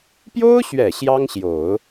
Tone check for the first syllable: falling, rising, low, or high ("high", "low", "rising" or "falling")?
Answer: high